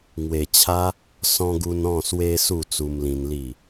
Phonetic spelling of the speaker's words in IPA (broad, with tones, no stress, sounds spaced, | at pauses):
ŋ w e˨˩ t͡ɕʰ a˧ | s ɔ̃˧ ɡ u˧ n ɔ̃˥˧ s w e˦ s u˥˧ t͡s u˧ m l ĩ˧ n l i˥˧